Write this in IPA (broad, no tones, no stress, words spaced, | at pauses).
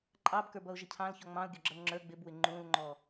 ǃʼɑbkə˞bʌʊ̯ʒɪ cʰɑ̃lçɔ ŋ͡mɑ̃ʊ̯ɡʲɔɡ͡ǁʌl ŋ͡ǁə˞ ɡ͡bɪbwɪ ŋ͡ǃũlŋ͡ǃɔ